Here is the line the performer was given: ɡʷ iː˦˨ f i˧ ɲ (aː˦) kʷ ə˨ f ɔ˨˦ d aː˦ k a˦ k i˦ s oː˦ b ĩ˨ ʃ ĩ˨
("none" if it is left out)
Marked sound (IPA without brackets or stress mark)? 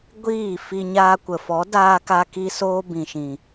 aː˧